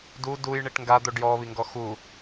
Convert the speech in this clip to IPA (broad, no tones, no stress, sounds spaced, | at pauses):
d u d u j ɳ i ʈ ŋ ɡ a d̪ o ɖ j ɔ β i ŋ ɡ ɔ x u